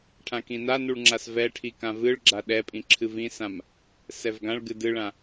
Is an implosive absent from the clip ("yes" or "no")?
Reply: no